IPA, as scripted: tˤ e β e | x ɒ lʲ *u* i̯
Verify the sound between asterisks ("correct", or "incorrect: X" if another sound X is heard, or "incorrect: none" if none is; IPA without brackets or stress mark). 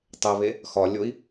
incorrect: o